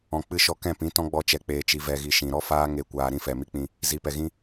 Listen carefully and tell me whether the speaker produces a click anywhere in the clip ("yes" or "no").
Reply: no